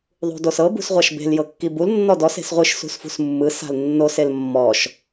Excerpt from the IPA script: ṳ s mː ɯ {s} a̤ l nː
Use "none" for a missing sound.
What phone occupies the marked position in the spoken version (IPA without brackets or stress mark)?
s